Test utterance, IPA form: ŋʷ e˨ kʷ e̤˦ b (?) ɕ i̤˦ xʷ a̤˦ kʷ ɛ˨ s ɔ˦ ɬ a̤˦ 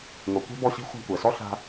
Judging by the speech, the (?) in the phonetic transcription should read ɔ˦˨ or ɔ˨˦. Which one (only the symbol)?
ɔ˦˨